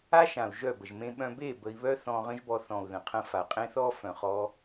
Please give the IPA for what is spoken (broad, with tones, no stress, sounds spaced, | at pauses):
a˦ ʃ ã˨ u̯ ʒ œ˦˨ b ə˨ ʒ m ẽ˧ ɓ œ̃˧ b e˦˨ b ə˧ i̯ β œ˦ θ ɔ̃˧ ʁ ə̃˦ ʒ b ɔ˧ θ ɔ̃˨ u̯ ð ə̃˨ qʰ ə̃˧ f a˨ qʼ ẽ˦ θ ɔ˦ f œ̃˨ χ ɔ˦